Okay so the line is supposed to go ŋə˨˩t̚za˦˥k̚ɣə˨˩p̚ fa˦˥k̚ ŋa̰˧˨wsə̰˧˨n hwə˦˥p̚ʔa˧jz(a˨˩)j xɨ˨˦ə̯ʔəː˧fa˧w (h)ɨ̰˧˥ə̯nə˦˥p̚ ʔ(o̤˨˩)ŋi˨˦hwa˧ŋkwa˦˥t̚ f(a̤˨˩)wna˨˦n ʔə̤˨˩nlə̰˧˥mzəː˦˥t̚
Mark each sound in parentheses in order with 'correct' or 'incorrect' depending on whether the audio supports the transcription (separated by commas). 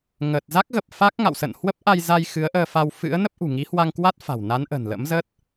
incorrect, incorrect, incorrect, correct